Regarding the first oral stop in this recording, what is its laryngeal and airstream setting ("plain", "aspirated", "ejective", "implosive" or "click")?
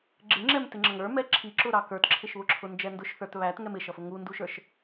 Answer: click